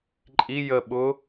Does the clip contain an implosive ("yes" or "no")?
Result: yes